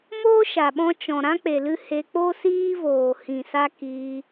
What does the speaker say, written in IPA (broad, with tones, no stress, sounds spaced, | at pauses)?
m oː˦ ʃ a˨ ɓ ɔ̃˧ t͡ʃ ɔ̃˨ ɾ ã˦ k͡p e˨ l ɨ˧ h e˧ k͡p o˦ s iː˦ v oː˨ h ĩ˨ s a˧ k iː˧